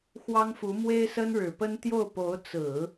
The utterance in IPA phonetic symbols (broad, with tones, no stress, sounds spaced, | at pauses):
x w ɑ˥ ŋ f u˧˥ m w e˥ ɪ̯ s ə˥ n ɻ ɻ̩˨˩ p ə˥ n t̪ j o˥˩ ʊ̯ p o˧˥ ʊ̯ t͡s ɹ̩˨˩˦